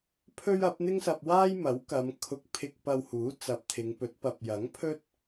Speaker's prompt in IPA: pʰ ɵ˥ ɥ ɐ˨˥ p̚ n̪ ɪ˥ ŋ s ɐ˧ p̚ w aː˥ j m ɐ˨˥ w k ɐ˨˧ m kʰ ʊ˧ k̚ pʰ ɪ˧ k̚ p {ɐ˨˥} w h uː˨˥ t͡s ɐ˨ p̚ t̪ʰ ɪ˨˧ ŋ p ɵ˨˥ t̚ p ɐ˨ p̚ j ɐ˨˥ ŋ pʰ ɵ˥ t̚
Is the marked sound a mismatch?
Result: yes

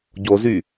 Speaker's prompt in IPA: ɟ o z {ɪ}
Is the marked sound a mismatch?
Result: yes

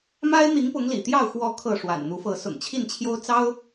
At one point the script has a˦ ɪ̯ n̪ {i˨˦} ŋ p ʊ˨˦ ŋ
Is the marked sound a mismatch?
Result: no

